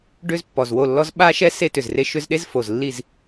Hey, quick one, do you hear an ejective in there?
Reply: no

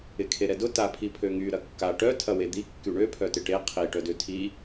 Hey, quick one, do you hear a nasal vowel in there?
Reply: no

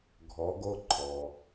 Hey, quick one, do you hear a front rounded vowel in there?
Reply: no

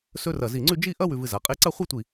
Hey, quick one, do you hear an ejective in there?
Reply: yes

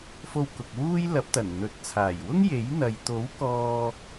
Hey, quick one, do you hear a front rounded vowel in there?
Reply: no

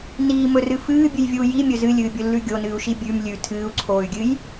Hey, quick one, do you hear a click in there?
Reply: yes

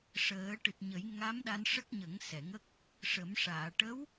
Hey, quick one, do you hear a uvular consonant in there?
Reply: no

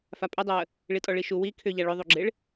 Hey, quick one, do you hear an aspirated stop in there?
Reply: yes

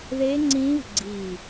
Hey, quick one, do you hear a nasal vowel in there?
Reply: yes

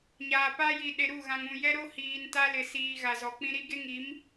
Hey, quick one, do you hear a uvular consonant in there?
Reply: no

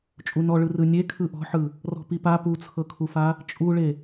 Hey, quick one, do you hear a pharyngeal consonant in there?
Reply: yes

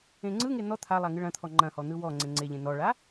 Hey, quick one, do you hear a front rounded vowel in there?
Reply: no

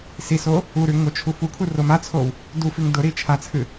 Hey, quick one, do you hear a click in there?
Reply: no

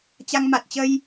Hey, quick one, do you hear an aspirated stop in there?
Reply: no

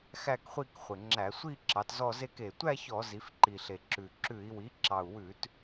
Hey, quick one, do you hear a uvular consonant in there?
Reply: yes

